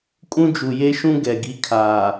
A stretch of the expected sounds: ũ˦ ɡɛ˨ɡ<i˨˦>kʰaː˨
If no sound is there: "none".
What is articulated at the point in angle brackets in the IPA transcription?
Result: i˨˦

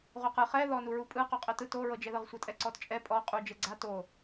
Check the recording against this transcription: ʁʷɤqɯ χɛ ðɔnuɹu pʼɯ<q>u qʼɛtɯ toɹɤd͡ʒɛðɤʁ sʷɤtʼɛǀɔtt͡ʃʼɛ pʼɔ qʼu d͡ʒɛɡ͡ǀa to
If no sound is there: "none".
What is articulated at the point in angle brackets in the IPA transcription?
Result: q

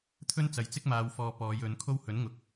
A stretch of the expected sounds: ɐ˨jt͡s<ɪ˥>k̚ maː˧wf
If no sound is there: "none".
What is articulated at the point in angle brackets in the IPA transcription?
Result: ɪ˥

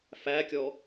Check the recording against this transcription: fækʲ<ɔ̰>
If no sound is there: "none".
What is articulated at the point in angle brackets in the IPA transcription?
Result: ɔ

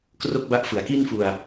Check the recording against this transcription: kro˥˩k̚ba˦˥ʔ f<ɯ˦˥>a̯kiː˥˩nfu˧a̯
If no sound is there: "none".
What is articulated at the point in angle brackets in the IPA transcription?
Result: ɯ˩˦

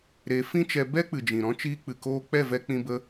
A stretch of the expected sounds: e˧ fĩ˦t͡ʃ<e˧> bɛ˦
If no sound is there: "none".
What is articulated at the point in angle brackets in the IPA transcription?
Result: ɛ˧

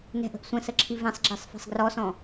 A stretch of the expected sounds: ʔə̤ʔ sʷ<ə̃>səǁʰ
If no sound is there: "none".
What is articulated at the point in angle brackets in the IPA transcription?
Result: ə̃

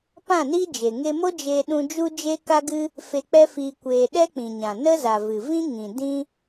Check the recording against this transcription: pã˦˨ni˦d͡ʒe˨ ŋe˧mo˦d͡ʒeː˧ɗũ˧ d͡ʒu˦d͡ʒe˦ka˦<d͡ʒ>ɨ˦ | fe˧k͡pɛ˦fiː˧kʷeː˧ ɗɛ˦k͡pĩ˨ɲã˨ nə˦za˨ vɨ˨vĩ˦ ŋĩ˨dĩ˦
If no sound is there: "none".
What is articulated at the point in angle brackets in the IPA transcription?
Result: ɡ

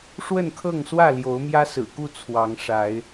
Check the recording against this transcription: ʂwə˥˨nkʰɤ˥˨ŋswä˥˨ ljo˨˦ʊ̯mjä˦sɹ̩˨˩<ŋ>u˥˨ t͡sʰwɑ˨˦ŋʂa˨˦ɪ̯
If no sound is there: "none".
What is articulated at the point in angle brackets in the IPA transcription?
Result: k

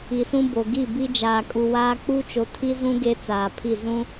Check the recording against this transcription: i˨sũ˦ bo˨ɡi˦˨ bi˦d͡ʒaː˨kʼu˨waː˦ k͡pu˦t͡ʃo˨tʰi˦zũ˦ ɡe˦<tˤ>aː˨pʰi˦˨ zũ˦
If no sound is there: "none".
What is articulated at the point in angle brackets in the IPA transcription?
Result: t͡s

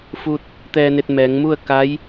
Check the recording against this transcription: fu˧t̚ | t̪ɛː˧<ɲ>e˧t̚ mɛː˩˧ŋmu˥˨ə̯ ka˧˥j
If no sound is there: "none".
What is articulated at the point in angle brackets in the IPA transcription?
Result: n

